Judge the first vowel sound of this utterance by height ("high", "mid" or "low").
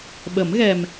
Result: mid